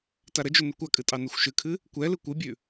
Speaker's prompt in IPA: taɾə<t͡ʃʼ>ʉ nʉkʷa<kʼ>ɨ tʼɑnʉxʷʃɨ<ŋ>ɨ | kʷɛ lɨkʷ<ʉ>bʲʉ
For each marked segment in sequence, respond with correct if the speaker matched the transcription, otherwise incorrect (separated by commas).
incorrect, correct, incorrect, incorrect